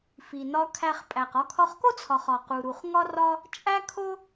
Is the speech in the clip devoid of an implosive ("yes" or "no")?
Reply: yes